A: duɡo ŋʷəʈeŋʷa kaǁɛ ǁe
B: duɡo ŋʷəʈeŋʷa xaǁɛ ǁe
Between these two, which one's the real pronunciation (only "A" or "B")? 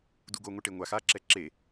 B